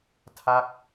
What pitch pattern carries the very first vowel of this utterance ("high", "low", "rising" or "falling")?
falling